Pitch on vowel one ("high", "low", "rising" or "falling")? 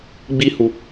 high